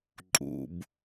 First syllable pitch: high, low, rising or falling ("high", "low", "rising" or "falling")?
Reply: low